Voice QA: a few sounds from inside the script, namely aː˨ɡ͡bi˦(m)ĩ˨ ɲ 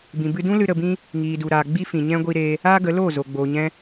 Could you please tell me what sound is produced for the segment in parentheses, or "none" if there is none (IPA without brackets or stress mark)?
f